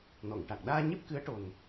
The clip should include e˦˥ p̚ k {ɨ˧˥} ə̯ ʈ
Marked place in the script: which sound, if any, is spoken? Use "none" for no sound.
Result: ɨ˧˥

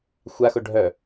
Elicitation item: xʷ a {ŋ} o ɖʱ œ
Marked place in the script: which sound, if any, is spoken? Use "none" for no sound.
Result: x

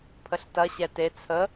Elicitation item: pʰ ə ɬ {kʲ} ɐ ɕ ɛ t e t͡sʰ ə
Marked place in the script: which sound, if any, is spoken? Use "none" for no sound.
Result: t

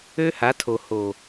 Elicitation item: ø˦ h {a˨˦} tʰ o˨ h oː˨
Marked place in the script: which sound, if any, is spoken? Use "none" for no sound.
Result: a˨˦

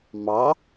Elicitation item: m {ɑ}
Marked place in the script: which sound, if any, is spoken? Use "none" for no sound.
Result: ɑ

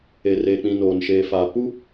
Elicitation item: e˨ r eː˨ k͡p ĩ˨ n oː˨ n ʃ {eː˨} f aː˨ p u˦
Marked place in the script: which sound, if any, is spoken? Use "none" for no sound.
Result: eː˨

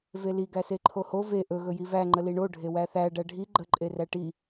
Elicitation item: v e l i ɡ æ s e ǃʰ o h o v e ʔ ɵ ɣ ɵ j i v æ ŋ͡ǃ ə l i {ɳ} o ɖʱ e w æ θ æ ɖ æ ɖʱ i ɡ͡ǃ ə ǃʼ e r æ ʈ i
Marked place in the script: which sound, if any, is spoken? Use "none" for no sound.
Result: ɳ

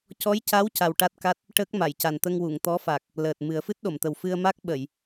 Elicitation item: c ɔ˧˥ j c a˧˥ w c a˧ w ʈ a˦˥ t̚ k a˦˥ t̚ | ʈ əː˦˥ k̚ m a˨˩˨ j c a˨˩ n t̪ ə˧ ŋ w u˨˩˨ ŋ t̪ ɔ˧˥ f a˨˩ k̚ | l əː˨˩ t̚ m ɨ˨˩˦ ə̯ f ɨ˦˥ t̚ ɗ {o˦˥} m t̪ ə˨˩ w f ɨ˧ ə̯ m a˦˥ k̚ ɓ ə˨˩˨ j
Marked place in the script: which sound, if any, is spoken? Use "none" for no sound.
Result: o˨˩˨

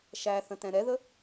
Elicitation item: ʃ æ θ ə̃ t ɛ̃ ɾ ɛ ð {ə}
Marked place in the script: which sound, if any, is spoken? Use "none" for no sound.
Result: ə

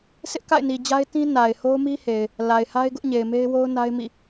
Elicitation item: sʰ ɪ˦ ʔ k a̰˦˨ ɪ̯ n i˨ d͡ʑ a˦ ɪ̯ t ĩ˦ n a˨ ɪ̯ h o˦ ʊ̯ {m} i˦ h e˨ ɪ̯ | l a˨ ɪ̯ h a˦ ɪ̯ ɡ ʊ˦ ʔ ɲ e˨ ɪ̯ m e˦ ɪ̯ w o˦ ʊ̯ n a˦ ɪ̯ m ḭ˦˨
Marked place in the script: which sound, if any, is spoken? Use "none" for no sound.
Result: m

